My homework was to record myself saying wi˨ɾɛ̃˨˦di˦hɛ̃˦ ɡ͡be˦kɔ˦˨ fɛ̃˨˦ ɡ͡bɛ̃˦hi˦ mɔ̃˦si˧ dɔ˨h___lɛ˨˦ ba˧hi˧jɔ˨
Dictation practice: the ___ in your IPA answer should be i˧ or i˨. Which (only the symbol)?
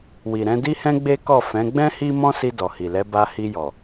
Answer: i˨